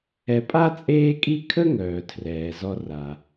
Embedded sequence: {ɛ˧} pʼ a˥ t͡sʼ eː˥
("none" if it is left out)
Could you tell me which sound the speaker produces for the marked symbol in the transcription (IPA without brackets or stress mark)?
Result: ɛ˧